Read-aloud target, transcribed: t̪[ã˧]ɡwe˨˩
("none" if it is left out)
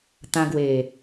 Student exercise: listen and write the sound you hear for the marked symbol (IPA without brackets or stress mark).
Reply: ã˧